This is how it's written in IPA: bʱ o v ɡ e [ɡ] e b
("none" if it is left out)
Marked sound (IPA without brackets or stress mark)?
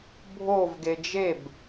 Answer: d͡ʒ